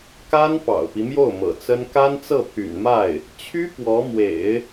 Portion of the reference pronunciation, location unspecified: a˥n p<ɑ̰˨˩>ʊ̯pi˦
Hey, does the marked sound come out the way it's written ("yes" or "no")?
yes